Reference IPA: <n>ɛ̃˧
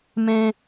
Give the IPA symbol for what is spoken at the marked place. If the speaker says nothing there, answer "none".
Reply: m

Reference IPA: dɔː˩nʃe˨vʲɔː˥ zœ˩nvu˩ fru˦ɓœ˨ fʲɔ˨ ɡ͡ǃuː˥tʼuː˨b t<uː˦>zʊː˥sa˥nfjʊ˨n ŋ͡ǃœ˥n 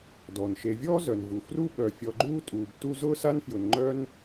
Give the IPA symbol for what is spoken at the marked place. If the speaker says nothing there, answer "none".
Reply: u˦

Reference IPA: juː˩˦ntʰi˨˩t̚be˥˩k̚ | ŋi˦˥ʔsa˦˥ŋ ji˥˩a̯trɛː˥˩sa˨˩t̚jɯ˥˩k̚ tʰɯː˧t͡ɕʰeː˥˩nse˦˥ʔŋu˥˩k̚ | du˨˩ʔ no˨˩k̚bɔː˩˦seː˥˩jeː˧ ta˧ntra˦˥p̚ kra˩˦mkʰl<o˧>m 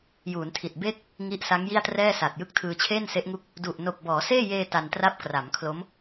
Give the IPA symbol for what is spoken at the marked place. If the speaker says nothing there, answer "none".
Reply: o˦˥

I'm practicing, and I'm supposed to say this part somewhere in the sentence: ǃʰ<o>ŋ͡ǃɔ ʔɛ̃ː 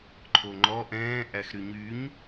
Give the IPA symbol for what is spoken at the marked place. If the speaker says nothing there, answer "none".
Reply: o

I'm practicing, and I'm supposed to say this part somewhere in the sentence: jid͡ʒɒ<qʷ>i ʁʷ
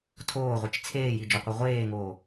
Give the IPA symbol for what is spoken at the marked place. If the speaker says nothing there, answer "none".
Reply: qʷ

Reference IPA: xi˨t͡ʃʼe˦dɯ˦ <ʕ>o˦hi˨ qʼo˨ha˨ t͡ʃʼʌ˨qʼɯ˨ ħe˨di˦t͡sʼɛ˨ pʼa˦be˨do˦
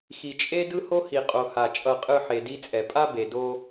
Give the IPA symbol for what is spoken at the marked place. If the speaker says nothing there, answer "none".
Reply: h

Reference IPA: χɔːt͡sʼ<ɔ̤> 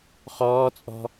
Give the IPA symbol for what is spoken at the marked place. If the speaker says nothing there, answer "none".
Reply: ɔ̤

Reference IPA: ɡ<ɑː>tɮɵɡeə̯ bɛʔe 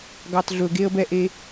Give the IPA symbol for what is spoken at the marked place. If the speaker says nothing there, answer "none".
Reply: ɑ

